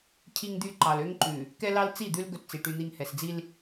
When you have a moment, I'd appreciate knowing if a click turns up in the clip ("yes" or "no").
yes